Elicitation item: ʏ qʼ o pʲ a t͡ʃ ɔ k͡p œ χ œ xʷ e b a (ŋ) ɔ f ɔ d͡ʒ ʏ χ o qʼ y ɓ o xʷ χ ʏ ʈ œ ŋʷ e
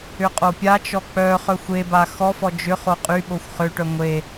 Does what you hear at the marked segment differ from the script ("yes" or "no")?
yes